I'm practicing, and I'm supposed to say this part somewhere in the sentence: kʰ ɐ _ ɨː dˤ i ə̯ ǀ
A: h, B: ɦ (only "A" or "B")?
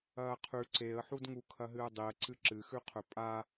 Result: B